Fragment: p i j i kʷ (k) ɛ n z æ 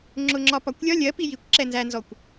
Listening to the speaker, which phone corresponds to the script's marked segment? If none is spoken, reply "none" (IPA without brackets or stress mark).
ǁ